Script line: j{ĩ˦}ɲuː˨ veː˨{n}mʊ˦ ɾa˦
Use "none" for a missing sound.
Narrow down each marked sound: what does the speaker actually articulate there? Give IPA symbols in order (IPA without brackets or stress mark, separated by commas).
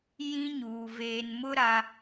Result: ĩ˦, n